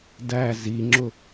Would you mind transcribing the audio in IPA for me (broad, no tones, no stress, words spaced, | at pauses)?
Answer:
dæ ziŋ͡ǁʊ